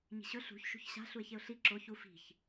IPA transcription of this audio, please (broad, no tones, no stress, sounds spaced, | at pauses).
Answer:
ɲ i̤ ɕ ɵ ɬ ṳ ç ʃ ṳ ç ɕ a̤ ɬ u ɪ̯ ç e ʊ̯ ɬ i ǁ o ç u f i̤ ç